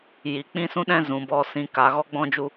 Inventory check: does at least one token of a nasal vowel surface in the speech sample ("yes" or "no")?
yes